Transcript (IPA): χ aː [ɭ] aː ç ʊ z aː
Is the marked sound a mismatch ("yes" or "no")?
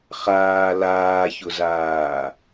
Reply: yes